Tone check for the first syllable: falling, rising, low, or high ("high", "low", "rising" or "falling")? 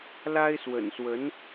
high